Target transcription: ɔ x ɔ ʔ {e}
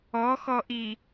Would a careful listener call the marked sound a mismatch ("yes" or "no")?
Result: yes